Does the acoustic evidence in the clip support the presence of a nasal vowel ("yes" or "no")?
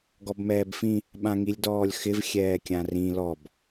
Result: yes